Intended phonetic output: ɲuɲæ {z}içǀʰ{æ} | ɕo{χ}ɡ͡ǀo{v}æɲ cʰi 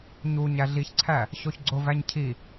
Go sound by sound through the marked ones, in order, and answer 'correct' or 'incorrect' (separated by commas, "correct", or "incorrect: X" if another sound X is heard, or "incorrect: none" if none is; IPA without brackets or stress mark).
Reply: incorrect: ɮ, correct, incorrect: ç, correct